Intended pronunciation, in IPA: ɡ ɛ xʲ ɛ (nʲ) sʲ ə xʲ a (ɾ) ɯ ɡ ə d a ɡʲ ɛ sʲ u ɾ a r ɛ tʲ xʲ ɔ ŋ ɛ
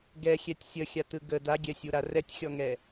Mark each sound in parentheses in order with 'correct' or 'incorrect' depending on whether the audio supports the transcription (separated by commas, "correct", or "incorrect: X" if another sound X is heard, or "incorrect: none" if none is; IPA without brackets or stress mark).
incorrect: tʲ, incorrect: t